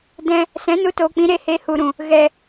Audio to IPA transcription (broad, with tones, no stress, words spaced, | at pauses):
dɛ̃˧ | sɛ̃˨˦nu˧toː˨k͡pĩ˨˦ ɾe˧he˧hu˨ɾũ˨ | ɣɛ˨